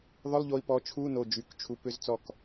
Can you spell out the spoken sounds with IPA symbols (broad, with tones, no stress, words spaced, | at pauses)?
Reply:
ðˤʊ˧˥˧lˠʎo˧i̯pɔ˩˧˩ t͡ʃʰu˧˥˧no˩˧˩d͡ʒy˩˧˩k t͡ʃʰu˧pʏ˦˥zt͡sɔ˥˩k